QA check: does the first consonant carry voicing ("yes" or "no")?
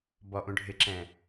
yes